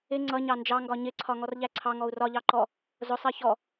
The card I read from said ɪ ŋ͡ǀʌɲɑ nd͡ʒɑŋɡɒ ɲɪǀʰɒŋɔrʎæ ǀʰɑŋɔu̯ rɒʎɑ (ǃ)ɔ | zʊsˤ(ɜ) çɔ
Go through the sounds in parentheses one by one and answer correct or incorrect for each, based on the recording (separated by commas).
correct, correct